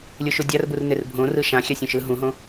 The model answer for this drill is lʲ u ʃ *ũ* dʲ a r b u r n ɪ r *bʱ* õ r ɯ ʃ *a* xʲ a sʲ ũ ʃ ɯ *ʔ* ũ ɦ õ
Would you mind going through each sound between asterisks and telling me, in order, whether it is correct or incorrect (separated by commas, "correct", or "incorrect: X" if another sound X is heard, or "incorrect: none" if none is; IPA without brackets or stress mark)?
incorrect: u, correct, incorrect: ã, incorrect: ɦ